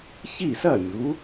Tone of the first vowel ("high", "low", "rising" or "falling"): falling